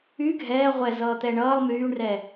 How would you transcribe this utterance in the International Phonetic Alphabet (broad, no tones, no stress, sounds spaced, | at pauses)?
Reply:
y ɡʱ ɛː ʁʷ ɛ z ʌː t̪ ɛ ɳ ʌː lˠ m yː ɳ r ɛ